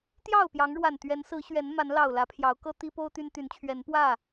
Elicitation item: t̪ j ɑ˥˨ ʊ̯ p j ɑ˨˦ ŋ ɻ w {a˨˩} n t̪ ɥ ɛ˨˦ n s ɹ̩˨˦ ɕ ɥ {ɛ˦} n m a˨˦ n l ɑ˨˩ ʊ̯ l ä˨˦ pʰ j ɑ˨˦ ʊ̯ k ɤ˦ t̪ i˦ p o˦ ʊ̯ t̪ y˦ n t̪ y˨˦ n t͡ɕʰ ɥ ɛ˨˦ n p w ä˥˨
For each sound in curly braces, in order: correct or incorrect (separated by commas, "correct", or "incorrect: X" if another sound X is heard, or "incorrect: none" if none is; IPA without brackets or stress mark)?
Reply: correct, incorrect: ɛ˨˦